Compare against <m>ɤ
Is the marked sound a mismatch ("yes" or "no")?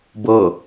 yes